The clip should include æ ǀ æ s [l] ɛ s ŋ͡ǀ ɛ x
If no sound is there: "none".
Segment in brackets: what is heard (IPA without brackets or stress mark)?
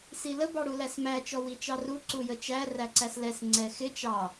l